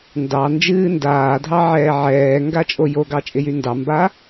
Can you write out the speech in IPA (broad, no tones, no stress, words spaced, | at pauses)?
ndɑ nd͡ʒɨːndaːdʱɑ ʕɛːʕɛːŋɡa t͡ʃʼojoɡɑ t͡ʃʼɪjyndɑmba